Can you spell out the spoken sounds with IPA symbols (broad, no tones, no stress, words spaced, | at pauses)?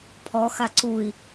pʰɔ xaǀui̯